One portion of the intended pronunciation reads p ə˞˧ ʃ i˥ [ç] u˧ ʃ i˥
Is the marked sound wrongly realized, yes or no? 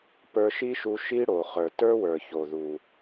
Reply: yes